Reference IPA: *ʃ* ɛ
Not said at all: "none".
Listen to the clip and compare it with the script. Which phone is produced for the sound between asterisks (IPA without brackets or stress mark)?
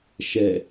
ʃ